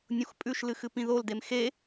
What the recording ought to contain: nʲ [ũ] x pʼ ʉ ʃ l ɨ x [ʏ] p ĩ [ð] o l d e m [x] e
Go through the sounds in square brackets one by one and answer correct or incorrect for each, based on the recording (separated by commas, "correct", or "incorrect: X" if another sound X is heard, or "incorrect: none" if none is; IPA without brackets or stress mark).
incorrect: õ, incorrect: ɨ, correct, correct